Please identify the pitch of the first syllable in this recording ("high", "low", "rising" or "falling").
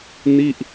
falling